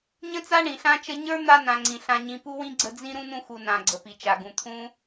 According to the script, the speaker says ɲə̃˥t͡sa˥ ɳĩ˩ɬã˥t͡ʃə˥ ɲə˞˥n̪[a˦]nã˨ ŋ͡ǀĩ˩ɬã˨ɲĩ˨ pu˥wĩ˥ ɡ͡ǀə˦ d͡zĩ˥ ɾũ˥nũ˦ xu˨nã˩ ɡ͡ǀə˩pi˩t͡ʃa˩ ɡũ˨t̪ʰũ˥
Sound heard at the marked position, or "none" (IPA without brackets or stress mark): a˦